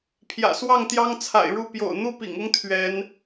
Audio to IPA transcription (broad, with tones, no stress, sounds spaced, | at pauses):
pʰ j ä̰˨˩ s w ɑ˥˨ ŋ t̪ j ɑ˦ ŋ t͡sʰ a̰˨˩ ɪ̯ ɻ u˥˨ p j o̰˨˩ ʊ̯ n̪ u˥˨ p ḭ˨˩ ŋ ʊ˦ ŋ t̪ʰ ɥ ɛ˨˦ n